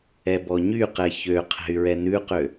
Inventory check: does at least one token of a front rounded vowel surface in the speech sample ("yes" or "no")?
yes